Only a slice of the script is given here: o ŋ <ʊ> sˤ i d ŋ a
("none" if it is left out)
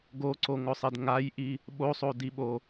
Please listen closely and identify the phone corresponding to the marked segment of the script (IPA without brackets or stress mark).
ʊ